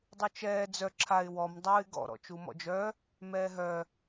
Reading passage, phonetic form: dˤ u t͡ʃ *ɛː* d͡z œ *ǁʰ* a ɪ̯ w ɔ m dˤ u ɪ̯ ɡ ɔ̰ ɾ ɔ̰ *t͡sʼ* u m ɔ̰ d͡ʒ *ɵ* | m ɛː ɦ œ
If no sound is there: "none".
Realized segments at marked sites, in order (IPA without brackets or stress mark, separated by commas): ɛː, ǁʰ, t͡ʃ, œ